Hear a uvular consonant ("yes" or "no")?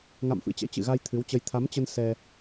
no